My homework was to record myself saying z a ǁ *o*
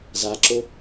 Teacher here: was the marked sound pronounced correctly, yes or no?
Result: yes